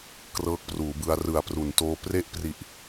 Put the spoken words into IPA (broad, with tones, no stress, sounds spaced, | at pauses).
k r ɤː˦˥ k̚ p r uː˩˦ b ɯ˧ a̯ r ɯ˨˩ a̯ p r u˩˦ n t oː˦˥ p r e˥˩ ʔ p r i˨˩ ʔ